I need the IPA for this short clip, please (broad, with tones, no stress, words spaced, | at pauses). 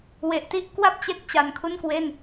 we˨˩ʔti˥˩ʔ kwa˥˩p̚t͡ɕe˦˥k̚ t͡ɕa˧nkʰu˥˩nkwe˥˩n